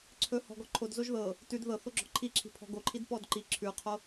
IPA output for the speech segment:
ǀʰ ɵ h ɔ̤ ɡ ɔ ǃʰ o d z o ʒ ð ɤ | t ʉ d ð ɤ θ o ɡ͡ǁ ɔ̤ ǃʰ i ǁʰ i̤ pʰ ɔ̤ ɡ o ǃʰ i d p ɔ d ǃ i ǁʰ ʉ qʰ o

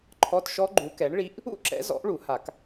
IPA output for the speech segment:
ǃʰ ɔ˧˥˧ t ʃ ɔ˦˥ ɡ͡ǃ u˨˥ k ɛ˨˥ ɳ ɭ i˦˥ ʔ | ṵ˦˥ ǁ ɛ̰˨˥ z ɔ̰˨˥ ʔ ɭ u˨˩˦ h a˨˩˦ k

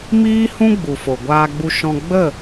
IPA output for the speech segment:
m iː˦ h ũ˦ ɡ͡b u˨ f o˨ ɡʷ aː˧ ɡ͡b u˧ ʃ ɔ̃˧ ɡ͡b ə˦˨

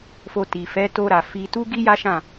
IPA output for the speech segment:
f o˧ t i˨ f ɛ˨˦ t o˧ ɾ a˨ f i˧ t u˦ ɡ i˦ j a˦ ʃ ã˦˨

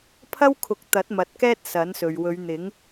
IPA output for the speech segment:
pʰ ɐ˥ w kʰ ʊ˨˥ k̚ t̪ ɐ˨˥ t̚ m ɐ˨ t̚ k ɛː˥ t̚ s ɐ˨˥ n s ɵ˨ ɥ w ɵ˨˧ ɥ n̪ ɪ˨˥ ŋ

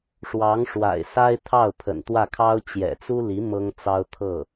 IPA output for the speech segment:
ʂ w ɑ˧˥ ŋ ʂ w a̰˨˩ ɪ̯ s a˥ ɪ̯ t̪ʰ ɑ˥˩ ʊ̯ pʰ ə̰˨˩ n t̪ w ä˥˩ kʰ ɑ˥ ʊ̯ t͡ɕ j ɛ̰˨˩ t͡s u˥ l i˧˥ m ɤ˥ ŋ t͡s ɑ˥ ʊ̯ t̪ʰ ɤ˥˩

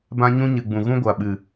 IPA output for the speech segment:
b ã˦ ɲ ũ˦ ɲ ɨ˨ ɡ͡b ũ˨ ɣ ũ˦ ɡʷ a˨ ɓ ɨ˨

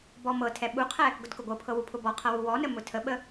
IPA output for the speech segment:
b ɔ m ɤ tʰ ɛ ɓ u qʰ ɛ | ɡ ʊ d k ʊ ɡʷ ɤ pʰ ɤ w u pʰ ʊ b ɔ qʰ ɤ w u w ɔ n ə m ʊ tʰ ə ɓ ə

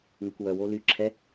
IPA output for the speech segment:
ŋ ə kʷ w œ w o l y ǁʰ ɛ

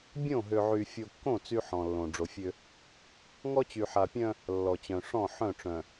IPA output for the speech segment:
bʲ õ˦˨ ɦ ø˨ ʕ y˨ fʲ o˨ kː õ˦˨ t͡s y˦ ħ ɔ̃˨ lː õ˨ ɖ͡ʐ o˨ fʲ ø˦ | ŋ ɔ˦ t͡ɕ y˨ ħ a˨ pʲ œ̃˦ | lː ɔ˨ t͡ɕ œ̃˨ ʂ ɔ̃˦˨ ħ œ̃˦˨ ʈ͡ʂ œ̃˨

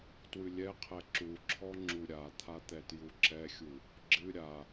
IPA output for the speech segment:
t w ɨ lʲ ɛ qʰ ɛ ǁ u ǁʰ ɔ ŋ͡ǁ u ɾʲ a t̪ʰ a t̪ ɛ t j u ǁ ɛ xʲ u | ɡ͡ǁ ɨ ɾʲ a

